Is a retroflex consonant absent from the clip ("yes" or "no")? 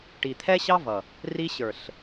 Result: no